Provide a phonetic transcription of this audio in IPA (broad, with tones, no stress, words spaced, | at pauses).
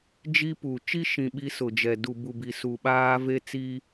d͡ʒi˦ pu˨ t͡ʃi˦ʃĩ˨ɓi˨˦ sʊ˨d͡ʒɛ˨ du˨bu˨bi˨su˨ ɓaː˦ve˦t͡si˦